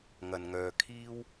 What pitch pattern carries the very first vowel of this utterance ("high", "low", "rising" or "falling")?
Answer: low